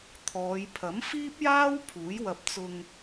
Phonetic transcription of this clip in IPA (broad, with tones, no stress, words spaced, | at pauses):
t̪ʰɔː˨˧jpʰɐ˨˥m fiː˥p̚jaː˥w pʰuː˨˥jwɐ˧p̚ t͡sʊ˧ŋ